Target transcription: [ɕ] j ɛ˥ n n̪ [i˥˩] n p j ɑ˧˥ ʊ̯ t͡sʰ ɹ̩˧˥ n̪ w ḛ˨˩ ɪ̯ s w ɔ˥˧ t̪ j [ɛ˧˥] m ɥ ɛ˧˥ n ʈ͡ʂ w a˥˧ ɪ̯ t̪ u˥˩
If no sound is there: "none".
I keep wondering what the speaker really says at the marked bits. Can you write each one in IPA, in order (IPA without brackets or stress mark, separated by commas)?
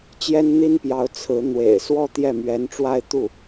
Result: t͡ɕ, i˥, ɛ˥˩